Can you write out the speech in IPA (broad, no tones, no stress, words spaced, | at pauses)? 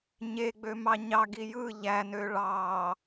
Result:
ɲeɡ͡bømɑ ɲɑɡi jɯ ʎænø ɭɑ